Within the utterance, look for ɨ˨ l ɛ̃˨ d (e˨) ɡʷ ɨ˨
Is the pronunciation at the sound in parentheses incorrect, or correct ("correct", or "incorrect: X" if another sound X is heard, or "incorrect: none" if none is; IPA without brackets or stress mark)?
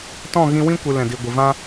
incorrect: i˨